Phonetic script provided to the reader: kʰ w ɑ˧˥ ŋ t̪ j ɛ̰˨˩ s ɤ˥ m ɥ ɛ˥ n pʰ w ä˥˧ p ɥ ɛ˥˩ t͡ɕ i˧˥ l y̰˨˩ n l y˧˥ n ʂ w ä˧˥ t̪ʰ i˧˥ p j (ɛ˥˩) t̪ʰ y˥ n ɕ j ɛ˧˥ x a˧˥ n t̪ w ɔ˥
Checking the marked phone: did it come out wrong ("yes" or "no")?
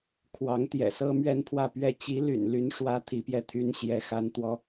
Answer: no